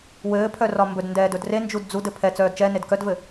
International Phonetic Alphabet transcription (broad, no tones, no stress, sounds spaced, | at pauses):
w ɘː pʰ œ r ɒ m b ɵ d n d ɛː d ɵ d r e n d͡ʒ u d d͡z u d ɘ pʰ ɛ t͡s œː d t͡ʃ ɛ n e d k œ d v ɘ